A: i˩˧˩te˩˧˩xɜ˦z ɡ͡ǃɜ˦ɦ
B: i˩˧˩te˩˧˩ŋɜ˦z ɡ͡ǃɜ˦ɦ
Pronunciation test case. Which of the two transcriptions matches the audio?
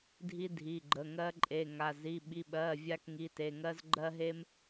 B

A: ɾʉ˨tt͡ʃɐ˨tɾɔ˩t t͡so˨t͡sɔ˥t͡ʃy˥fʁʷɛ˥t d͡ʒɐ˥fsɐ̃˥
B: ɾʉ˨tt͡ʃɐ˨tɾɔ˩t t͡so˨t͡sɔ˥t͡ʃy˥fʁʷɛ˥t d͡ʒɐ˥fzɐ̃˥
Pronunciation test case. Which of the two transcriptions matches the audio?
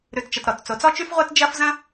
B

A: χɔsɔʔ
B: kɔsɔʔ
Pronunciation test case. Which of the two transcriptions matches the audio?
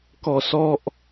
B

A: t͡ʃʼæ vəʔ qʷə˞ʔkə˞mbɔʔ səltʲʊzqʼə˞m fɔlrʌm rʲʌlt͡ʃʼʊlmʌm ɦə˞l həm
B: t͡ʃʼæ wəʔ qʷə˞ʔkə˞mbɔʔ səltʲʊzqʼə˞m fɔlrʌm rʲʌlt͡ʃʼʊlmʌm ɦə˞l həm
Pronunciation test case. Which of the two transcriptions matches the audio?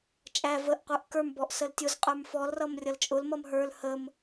A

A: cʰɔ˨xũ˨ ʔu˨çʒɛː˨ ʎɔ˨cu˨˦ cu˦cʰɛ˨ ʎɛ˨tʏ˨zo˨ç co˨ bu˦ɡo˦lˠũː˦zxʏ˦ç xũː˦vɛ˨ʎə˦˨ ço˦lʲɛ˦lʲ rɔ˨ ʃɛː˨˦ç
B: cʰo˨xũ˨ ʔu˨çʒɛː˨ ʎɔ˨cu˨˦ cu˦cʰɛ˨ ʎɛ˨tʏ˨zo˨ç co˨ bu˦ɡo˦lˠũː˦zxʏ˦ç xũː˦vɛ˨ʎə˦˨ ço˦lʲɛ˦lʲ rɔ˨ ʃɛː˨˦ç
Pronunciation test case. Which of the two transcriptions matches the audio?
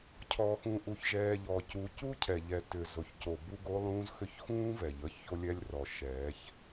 A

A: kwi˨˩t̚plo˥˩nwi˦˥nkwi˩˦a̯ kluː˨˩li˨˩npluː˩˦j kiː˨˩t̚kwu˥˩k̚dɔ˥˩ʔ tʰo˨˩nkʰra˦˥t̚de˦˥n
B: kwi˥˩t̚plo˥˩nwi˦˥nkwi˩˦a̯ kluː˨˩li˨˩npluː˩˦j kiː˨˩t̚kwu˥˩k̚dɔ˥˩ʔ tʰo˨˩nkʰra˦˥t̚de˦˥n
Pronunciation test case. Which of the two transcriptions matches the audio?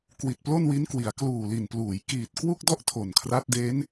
A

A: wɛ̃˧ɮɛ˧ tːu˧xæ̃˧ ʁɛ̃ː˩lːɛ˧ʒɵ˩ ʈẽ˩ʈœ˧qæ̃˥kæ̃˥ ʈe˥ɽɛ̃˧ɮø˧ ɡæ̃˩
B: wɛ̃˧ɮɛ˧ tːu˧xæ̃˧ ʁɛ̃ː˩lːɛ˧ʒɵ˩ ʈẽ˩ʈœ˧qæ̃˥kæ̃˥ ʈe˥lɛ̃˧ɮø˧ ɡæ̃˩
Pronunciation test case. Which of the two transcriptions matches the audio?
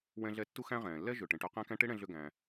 A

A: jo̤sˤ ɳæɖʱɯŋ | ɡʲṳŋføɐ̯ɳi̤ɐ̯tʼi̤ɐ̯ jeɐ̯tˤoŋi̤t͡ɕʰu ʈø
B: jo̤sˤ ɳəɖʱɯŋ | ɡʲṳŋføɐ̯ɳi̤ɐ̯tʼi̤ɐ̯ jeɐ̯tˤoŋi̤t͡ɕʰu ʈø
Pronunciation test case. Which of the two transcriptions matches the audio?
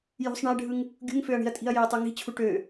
A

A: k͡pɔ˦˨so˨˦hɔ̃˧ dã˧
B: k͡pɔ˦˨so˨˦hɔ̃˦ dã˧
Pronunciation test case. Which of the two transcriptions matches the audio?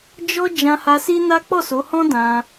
B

